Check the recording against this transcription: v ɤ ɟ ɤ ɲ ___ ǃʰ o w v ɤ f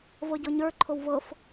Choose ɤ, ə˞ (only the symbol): ə˞